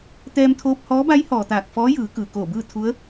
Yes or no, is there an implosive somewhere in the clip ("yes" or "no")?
no